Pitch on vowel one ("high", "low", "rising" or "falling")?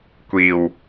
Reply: low